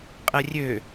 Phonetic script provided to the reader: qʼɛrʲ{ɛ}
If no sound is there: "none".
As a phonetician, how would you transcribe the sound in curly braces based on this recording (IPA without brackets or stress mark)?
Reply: ø